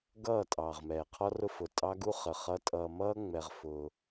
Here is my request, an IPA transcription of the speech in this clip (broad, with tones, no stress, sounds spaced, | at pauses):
ɡ ʌː˦˨ tʼ ɑː˨ ʁ m ɛː˨ qʰ ɔ˦ r ʊ˦ f ʊ˨ tʼ ɑ˦ ɡ u˦ χ ə˨ χ ʌ˨˦ tʼ ʌː˨ m ʌː˦ ŋ͡m ɛ˨ ʁ f ʊ˦